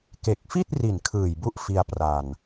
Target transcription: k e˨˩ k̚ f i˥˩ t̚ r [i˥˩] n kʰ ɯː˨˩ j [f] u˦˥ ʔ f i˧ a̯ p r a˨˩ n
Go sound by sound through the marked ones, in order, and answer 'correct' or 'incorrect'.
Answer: incorrect, incorrect

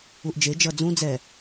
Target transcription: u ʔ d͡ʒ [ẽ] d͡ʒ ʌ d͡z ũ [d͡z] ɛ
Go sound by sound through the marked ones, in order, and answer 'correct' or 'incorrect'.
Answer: incorrect, correct

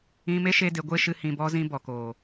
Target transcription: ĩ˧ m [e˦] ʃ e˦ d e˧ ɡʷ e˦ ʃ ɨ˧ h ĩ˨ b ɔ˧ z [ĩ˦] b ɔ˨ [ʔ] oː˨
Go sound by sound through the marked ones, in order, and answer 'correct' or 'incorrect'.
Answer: correct, incorrect, incorrect

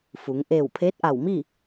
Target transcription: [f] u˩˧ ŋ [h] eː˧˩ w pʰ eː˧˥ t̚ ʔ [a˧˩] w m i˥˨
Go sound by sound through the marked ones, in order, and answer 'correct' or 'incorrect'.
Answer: correct, incorrect, correct

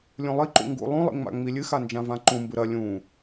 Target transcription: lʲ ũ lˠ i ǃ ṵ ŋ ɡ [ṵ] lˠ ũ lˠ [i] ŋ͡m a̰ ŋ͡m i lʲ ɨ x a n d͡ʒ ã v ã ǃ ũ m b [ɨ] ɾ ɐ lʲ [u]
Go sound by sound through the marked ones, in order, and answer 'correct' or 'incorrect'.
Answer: correct, incorrect, correct, incorrect

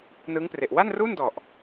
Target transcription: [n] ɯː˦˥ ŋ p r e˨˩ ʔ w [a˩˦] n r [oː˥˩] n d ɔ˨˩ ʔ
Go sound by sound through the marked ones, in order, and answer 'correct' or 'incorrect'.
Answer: correct, incorrect, incorrect

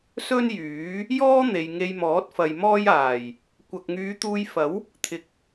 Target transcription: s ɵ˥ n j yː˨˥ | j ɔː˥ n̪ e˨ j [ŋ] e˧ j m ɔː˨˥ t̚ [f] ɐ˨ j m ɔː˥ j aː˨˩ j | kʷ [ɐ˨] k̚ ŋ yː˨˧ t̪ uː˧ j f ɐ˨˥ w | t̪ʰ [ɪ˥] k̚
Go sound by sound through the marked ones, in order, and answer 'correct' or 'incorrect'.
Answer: correct, correct, correct, incorrect

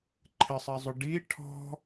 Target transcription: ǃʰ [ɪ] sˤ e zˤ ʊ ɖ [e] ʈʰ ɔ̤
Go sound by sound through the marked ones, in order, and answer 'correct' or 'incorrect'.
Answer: correct, incorrect

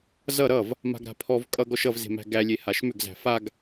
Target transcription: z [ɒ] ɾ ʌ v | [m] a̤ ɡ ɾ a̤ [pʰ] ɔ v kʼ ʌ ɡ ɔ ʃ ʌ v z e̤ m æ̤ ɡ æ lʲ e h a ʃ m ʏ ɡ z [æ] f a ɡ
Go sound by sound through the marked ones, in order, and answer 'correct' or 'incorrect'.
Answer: incorrect, correct, correct, incorrect

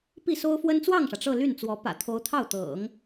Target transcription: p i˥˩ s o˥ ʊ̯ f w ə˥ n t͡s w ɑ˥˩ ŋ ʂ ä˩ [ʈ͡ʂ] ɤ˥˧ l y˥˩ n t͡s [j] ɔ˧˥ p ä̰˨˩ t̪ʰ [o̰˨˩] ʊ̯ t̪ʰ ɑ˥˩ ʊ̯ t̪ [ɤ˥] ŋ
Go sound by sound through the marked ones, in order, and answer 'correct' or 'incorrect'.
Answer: correct, incorrect, incorrect, incorrect

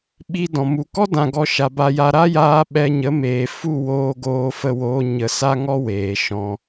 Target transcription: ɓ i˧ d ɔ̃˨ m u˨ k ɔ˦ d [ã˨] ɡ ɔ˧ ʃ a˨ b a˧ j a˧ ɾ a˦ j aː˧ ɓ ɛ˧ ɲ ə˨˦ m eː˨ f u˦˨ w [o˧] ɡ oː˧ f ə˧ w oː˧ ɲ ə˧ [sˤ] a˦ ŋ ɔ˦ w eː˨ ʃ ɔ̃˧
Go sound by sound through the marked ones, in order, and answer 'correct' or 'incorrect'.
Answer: incorrect, incorrect, incorrect

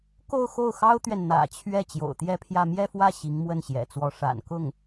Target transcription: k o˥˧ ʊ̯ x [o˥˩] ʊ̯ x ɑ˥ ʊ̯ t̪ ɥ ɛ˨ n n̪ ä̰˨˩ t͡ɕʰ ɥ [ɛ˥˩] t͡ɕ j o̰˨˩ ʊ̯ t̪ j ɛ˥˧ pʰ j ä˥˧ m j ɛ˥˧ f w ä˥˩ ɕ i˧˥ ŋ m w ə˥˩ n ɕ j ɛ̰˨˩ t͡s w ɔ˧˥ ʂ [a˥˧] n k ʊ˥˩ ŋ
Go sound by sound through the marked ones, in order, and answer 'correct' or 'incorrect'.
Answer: correct, correct, incorrect

